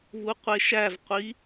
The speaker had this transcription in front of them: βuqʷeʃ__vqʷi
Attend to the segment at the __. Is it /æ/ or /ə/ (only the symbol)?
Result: æ